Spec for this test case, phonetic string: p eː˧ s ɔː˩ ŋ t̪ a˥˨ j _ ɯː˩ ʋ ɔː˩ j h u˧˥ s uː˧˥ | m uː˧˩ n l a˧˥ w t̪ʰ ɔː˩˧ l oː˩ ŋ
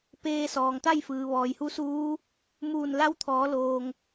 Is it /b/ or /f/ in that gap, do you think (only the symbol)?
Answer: f